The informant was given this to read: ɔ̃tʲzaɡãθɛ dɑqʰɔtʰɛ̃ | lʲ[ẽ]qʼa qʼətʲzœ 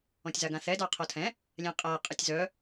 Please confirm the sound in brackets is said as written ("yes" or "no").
no